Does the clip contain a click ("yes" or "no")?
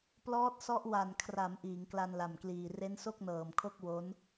no